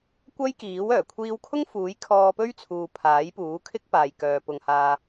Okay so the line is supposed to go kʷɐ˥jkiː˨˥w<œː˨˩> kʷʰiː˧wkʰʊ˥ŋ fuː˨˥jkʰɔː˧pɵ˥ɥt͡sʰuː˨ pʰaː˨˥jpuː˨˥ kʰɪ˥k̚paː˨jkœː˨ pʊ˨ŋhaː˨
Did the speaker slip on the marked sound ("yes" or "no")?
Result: no